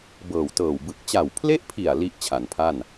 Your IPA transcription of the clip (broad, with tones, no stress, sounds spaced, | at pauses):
b ɤː˨˩ w t ɤː˨˩ w b ɯ˨˩ k̚ t͡ɕ a˨˩ w pʰ l e˦˥ ʔ pʰ i˨˩ a̯ l i˦˥ ʔ t͡ɕʰ a˩˦ n pʰ a˥˩ n